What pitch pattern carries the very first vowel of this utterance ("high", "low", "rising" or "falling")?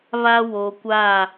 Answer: high